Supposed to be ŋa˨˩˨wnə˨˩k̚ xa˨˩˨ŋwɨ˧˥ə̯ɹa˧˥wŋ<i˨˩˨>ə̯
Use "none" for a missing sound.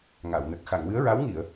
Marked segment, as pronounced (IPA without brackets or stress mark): i˨˩˨